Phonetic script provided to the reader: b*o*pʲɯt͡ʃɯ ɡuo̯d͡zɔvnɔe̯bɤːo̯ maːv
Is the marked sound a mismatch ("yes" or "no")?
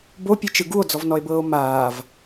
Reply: no